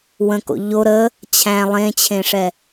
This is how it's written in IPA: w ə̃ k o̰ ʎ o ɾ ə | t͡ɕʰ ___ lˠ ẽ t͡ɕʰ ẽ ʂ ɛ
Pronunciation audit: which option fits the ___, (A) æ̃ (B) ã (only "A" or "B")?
A